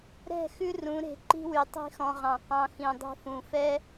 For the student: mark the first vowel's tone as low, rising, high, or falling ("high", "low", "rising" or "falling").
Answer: falling